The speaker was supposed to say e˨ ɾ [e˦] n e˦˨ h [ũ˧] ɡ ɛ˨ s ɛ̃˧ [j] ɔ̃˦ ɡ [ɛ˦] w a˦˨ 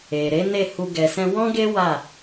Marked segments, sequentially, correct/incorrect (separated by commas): incorrect, incorrect, incorrect, incorrect